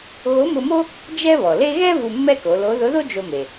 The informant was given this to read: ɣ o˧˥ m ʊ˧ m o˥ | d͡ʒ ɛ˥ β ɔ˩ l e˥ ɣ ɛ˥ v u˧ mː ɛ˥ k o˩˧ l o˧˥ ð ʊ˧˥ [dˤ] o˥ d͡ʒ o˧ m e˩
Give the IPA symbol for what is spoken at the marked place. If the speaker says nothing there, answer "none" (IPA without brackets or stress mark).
ð